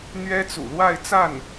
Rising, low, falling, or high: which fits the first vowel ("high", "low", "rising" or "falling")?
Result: high